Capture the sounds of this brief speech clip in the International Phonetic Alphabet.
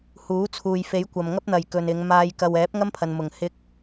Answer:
h uː˨˥ t͡sʰ uː˨ j f e˨˥ j kʷ ɐ˨ m ŋ ɐ˥ p̚ n̪ ɐ˨ j k ɵ˨ n ɪ˨˧ ŋ m aː˧ j k ɐ˨ w ɛː˨˥ p̚ ŋ ɐ˥ m pʰ ɐ˨ n m ʊ˨˩ ŋ h ɪ˧ k̚

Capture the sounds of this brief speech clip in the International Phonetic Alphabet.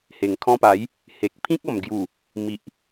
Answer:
h e˨˩ ŋ kʰ ɔ̃˧ p a˨˦ j | h e˨ k̚ pʰ ĩ˦ k̚ ɔ˨˩ m ɡ j u˨˩ | m i˨ ʔ

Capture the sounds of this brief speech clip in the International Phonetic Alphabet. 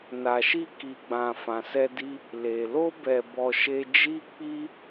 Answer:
n a˨ ʃ i˧ k i˨ ɡ͡b ã˨ f ã˨ s ɛ˧ d i˧ | l e˨ l o˧ b ɛ˨ b ɔ˨ ʃ e˧ d͡ʒ i˦ k͡p i˦

